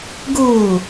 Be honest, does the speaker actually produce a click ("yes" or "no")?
no